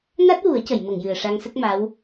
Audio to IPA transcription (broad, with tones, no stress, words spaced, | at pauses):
na˦˥t̚wu˨˩˦ə̯cə˨˩˨jmə˨˩˨ŋ jɨ˨˩ə̯ʂa˧ŋsə˦˥k̚ma˧˥w